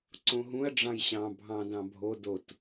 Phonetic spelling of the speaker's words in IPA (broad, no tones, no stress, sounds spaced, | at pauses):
ǀ õ ɦ ũ ɐ̯ ɖ͡ʐ ɑ̃ j ɕ ɑ̃ bʱ ɑ̃ d ɑ̃ bʱ o d o t